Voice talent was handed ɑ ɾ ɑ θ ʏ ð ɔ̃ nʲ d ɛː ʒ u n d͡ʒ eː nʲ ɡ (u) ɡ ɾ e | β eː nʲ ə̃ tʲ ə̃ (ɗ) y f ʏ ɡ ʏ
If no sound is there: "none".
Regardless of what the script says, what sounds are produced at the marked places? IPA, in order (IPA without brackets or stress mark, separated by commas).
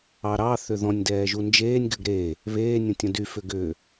ʏ, d